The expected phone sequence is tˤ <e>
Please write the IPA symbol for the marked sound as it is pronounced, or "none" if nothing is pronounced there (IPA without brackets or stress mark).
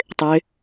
ø